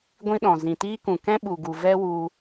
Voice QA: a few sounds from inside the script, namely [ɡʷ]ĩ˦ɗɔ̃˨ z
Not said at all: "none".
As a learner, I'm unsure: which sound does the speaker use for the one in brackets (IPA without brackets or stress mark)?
ɡʷ